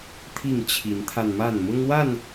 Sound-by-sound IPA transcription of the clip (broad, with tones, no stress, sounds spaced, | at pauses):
t̪ʰ i˥˨ ŋ t͡ɕʰ i˨˦ n t̪ʰ a˧ n m a˥˨ n m ʊ˦ ŋ w a˥˨ n